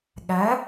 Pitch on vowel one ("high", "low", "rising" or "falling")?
rising